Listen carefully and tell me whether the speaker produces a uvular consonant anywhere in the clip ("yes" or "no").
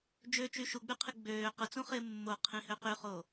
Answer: yes